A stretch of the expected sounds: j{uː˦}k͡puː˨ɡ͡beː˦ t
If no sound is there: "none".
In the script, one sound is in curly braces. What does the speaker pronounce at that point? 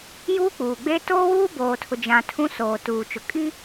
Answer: uː˦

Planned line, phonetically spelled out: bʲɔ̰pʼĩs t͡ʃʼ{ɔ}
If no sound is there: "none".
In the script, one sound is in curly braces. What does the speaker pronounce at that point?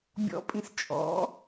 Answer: ɔ̰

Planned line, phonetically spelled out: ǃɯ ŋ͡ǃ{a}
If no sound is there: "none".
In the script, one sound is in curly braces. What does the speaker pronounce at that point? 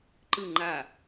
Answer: a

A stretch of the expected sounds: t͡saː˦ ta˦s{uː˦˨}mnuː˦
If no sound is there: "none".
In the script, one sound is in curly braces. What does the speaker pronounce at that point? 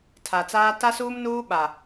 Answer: uː˦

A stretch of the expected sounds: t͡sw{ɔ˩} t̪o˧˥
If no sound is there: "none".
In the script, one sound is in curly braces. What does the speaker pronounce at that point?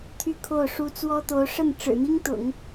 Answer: ɔ˥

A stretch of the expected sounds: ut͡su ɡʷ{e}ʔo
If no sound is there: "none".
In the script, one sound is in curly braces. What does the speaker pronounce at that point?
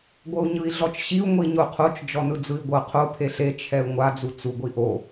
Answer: i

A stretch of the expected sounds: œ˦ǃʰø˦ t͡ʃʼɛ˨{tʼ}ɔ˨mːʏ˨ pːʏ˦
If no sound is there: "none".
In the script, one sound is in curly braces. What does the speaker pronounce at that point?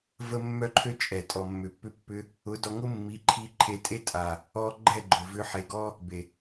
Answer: tʼ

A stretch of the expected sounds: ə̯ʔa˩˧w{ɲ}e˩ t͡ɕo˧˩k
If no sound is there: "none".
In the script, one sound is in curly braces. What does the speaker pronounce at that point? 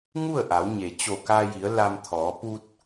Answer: ɲ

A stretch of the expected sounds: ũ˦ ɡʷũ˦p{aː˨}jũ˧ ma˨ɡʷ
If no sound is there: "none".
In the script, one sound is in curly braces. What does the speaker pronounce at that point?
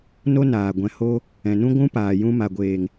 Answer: aː˨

